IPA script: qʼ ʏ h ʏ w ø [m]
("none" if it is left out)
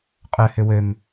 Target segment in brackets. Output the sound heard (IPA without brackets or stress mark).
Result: m